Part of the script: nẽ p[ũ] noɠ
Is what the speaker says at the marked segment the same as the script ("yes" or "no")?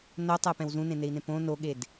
no